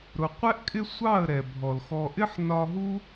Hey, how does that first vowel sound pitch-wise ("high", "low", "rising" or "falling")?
low